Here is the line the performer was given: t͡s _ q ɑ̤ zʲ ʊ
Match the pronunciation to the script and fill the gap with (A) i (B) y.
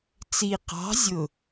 A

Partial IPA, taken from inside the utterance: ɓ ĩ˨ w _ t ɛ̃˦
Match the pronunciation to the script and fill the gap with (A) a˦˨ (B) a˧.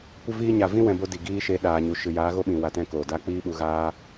B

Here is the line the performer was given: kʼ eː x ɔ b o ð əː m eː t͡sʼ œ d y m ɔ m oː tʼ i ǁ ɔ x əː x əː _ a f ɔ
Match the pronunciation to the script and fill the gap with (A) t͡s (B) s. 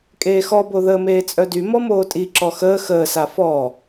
B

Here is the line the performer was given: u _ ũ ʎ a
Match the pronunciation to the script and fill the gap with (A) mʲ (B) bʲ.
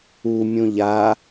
A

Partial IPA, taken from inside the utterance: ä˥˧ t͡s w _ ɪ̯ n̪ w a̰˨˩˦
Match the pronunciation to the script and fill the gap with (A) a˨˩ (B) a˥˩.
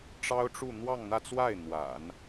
B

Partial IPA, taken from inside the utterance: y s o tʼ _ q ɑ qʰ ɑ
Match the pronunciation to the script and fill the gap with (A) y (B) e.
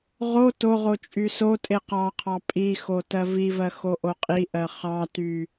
B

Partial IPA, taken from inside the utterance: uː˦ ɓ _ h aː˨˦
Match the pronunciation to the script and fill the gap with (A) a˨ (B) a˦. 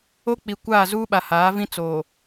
A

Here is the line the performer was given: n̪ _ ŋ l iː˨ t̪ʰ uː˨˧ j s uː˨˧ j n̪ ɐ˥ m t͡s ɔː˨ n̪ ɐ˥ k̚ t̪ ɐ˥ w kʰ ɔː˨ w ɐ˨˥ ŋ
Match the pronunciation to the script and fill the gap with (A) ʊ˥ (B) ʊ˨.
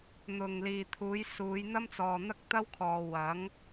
B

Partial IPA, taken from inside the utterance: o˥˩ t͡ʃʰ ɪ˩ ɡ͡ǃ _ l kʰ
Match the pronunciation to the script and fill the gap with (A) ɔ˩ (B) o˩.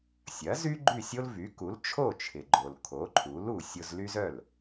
B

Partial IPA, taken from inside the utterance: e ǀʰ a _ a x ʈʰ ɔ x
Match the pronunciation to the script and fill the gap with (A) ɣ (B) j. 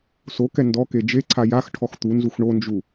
B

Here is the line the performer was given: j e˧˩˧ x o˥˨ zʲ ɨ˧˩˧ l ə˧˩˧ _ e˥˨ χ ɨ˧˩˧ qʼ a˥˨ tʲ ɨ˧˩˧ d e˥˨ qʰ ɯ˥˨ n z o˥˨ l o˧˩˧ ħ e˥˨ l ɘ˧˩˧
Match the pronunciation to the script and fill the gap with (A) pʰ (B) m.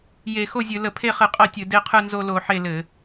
A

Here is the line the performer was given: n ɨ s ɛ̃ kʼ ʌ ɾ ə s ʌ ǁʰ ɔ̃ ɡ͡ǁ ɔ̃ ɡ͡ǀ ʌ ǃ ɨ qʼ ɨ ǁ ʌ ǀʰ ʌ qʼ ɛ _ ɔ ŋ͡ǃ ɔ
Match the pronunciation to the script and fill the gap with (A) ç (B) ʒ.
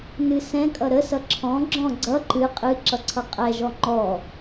B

